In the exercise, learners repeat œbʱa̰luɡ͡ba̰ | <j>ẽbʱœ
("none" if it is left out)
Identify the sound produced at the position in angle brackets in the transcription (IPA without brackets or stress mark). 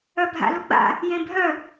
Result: j